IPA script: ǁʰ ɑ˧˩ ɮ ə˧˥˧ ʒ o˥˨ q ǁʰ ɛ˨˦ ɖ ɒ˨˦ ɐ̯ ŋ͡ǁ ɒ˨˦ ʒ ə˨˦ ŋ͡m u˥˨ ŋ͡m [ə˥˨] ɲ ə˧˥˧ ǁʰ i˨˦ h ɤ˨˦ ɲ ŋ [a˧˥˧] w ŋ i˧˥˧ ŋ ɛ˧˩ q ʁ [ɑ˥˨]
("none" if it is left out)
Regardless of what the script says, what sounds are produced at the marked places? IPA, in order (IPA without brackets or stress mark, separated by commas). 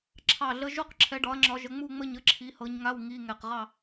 ə˥˨, a˧˥˧, ɑ˥˨